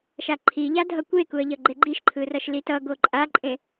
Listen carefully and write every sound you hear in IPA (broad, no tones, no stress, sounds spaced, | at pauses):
ʃ a ǃʰ i ʎ a dʱ ʌ kʷ e k u ə̯ ʎ ʌ ɡ͡ǃ e ɡ͡ǃ i ʃ ǃʰ ɯ r ʌ ʃ l i t ʌ ɡ o ǃʼ a ǃʼ ẽ